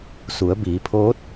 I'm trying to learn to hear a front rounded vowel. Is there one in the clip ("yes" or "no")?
no